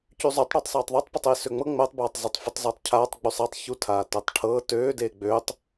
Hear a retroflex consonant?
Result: yes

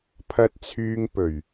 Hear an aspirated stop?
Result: yes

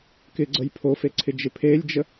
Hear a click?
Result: yes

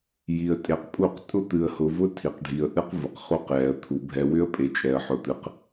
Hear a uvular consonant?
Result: yes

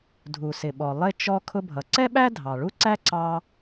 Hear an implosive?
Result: yes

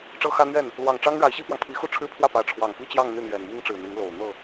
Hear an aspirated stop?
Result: yes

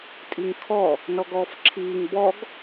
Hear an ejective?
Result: yes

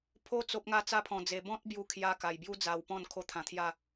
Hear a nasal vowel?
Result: yes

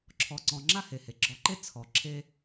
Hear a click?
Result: yes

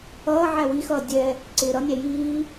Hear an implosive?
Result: no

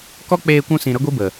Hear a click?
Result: no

